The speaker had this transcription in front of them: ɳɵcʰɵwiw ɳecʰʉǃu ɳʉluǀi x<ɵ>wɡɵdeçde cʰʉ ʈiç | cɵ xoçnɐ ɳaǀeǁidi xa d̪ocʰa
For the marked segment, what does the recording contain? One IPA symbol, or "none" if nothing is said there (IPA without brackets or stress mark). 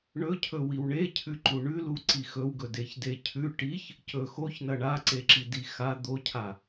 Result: ɵ